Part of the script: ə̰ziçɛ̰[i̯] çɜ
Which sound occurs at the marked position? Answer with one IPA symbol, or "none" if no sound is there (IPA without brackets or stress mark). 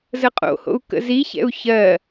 u̯